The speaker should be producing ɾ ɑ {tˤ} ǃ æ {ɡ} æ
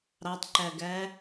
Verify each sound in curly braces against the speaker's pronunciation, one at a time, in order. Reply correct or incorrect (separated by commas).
correct, correct